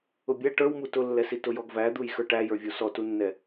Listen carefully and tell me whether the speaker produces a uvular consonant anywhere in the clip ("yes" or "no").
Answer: no